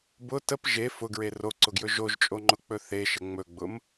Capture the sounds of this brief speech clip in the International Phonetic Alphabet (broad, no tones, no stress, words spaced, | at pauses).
bʊ təp ʒe fʊɡɹe roǀʊɡjɵ ʒoʒt͡ʃʼoŋ͡ǃʊk͡pɵ θeʃə ŋ͡mɵɡ͡bʊm